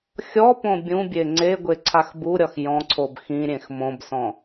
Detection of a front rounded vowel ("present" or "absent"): absent